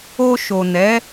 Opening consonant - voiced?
no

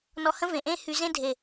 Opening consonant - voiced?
yes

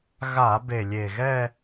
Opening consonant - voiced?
yes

